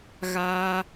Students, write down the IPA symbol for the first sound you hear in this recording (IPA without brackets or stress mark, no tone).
ɣ